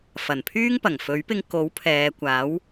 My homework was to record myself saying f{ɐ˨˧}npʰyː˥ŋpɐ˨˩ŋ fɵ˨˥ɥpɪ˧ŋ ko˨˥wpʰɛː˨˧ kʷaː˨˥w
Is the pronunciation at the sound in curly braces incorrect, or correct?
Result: incorrect: ɐ˨˩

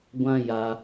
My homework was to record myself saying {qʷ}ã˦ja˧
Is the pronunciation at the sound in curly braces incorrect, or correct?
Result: incorrect: ɡʷ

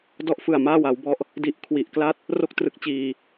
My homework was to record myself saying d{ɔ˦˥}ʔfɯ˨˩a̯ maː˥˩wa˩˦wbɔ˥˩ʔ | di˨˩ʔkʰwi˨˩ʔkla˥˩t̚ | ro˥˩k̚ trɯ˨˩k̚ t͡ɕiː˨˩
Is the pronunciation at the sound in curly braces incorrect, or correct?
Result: correct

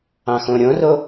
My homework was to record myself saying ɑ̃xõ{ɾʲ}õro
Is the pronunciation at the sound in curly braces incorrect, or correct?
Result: correct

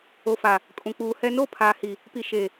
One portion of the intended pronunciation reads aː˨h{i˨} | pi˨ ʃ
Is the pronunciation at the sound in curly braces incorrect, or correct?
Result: correct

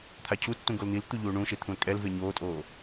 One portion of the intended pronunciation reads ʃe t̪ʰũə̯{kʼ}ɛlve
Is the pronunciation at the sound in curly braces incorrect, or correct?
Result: correct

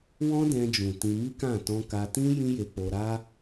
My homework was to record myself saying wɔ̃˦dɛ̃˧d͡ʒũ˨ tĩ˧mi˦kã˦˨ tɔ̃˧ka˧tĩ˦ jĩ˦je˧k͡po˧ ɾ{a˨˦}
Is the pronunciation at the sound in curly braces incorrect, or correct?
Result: incorrect: a˦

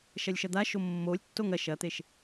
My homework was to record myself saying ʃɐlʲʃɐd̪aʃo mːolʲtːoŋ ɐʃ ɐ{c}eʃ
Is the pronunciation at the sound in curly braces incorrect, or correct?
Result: incorrect: t̪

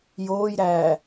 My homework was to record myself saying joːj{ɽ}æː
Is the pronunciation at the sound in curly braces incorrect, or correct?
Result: incorrect: ɾ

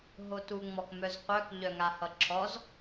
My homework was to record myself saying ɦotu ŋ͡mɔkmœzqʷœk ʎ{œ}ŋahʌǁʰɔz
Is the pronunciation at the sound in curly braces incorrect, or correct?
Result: correct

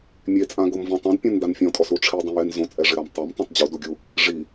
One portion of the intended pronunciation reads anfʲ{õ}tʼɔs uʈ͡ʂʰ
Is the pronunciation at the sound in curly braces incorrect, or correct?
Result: incorrect: ɔ̃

